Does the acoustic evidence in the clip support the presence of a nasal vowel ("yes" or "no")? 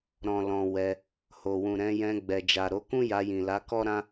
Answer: yes